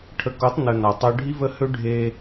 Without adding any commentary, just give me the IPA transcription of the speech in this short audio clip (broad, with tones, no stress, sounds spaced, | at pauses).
ʈʰ ə˨ k o˨˦ tˤ n ə˨ n a˨ tˤ ø˦ ɖʱ i˦ v ə˦ h ø˦ ɖʱ e˦